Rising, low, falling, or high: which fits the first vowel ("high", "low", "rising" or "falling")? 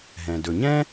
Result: low